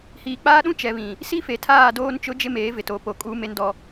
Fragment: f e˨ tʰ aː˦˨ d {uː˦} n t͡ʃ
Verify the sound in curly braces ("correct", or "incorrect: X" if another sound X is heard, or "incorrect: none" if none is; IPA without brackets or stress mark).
incorrect: oː˦